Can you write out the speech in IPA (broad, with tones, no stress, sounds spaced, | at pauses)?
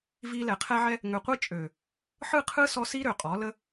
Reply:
v i˧ l ɛ˨ qʰ ɛ˧ ʕ ɛ˧ | ŋ ø˨ qʷ i˧ t͡ʃʼ ø˨ | ħ ɯ˦˨ qʰ ɯ˦ s ɔ˧ s i˦ ɾ ø˨ qʼ ɔ˨˦ l ə˦